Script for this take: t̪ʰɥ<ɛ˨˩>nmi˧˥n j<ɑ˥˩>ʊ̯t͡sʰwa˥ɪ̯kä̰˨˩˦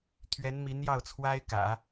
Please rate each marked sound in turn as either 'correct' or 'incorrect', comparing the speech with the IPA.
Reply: incorrect: ɛ˧˥, correct

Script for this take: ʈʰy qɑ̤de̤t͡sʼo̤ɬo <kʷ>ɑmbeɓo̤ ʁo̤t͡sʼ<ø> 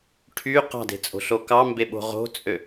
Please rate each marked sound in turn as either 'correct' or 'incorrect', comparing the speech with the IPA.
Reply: incorrect: k, correct

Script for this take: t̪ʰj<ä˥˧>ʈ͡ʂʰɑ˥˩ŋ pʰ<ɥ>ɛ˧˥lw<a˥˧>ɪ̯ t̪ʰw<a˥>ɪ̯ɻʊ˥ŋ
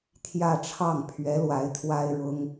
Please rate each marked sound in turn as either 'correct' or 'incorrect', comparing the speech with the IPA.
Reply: correct, correct, incorrect: a˧˥, correct

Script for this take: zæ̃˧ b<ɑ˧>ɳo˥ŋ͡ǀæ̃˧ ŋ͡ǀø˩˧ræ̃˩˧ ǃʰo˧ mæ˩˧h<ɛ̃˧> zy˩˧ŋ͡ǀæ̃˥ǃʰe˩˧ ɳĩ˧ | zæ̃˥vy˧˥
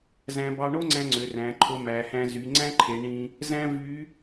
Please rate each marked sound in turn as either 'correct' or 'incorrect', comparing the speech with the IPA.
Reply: correct, incorrect: æ̃˧

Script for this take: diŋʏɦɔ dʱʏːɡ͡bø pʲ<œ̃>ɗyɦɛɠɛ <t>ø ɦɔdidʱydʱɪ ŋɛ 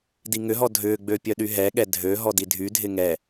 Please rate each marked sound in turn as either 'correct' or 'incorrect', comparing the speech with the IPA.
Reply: incorrect: œ, incorrect: dʱ

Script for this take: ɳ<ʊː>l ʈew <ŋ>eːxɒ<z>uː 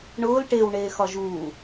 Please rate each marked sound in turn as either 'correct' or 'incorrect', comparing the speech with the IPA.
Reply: correct, incorrect: ɳ, incorrect: ʒ

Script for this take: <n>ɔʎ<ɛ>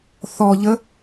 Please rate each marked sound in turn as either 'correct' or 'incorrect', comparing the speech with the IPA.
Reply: incorrect: θ, incorrect: ə

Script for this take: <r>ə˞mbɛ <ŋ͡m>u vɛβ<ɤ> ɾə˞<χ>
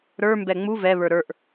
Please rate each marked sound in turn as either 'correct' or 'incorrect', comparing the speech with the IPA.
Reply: incorrect: ɾ, correct, incorrect: ə˞, incorrect: ʔ

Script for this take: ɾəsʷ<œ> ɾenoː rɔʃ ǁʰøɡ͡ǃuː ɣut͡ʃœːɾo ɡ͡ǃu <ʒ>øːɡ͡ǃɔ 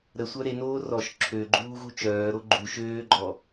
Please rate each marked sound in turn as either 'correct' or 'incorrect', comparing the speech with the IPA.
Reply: correct, incorrect: ʃ

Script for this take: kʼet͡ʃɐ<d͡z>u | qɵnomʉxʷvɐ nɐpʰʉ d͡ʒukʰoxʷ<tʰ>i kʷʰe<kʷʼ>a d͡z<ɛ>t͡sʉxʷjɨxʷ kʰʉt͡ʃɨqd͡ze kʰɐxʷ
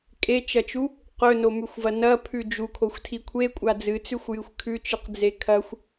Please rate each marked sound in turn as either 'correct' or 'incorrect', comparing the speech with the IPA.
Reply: incorrect: t͡ʃ, correct, correct, incorrect: ɨ

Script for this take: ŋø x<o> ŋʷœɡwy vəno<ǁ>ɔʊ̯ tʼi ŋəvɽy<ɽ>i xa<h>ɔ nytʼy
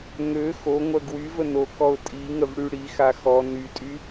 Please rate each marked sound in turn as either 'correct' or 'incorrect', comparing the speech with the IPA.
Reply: correct, incorrect: k, correct, incorrect: x

